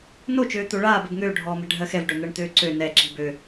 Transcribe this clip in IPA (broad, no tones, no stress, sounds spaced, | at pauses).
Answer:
n o t͡ʃ øː t̪ o ɭ aː b ɛ b ŋ øː ɖʱ ɔː m ɛ̤ ɖʱ ɜ x ɛ v ɖ œ n̪ ɜ ɳ t̪ øː ǀ ø n ɛ ǁ i̤ b ø